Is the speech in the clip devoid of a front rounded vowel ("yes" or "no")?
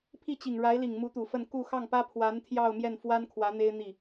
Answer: yes